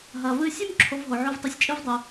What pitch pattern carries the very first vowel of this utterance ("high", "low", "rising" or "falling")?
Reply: low